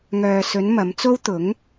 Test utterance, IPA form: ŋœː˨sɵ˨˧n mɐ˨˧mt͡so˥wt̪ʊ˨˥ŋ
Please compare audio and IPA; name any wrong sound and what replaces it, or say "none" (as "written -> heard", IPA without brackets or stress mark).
none